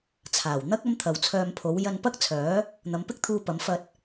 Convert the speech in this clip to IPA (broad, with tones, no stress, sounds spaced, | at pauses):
t͡sʰ aː˨˩ w n̪ ɐ˥ k̚ ɐ˥ m t̪ʰ ɐ˨ w t͡sʰ œː˧ m pʰ o˨˥ w j ɐ˧ n p ɐ˥ k̚ t͡sʰ œː˨˥ | n̪ ɐ˨˧ m p ɪ˥ k̚ t̪ʰ uː˧ p ɐ˨˥ m f ɐ˧ t̚